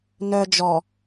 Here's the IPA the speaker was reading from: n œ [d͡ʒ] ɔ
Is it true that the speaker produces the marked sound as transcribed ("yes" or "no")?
yes